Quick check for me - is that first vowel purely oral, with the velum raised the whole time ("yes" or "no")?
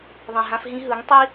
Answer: no